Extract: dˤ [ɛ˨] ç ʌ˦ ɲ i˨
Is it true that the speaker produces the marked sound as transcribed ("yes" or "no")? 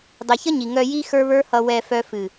yes